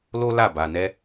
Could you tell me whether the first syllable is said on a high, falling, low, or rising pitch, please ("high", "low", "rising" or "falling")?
high